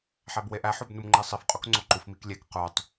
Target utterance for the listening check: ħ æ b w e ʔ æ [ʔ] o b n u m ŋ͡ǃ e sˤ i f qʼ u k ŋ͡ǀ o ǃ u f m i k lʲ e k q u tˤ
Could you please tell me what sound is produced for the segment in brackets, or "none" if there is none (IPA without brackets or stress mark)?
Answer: ħ